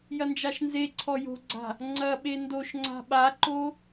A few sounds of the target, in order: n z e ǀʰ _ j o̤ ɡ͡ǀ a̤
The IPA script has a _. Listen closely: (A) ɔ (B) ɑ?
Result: A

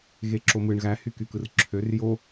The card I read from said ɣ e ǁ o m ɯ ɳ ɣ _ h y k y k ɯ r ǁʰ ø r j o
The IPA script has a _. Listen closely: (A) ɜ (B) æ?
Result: B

